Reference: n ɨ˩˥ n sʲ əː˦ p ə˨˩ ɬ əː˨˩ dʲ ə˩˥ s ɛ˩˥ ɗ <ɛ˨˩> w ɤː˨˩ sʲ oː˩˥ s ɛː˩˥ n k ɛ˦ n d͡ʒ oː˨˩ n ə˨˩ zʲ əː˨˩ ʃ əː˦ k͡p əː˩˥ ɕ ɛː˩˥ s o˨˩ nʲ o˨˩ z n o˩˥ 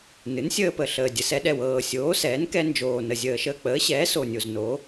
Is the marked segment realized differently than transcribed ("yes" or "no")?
no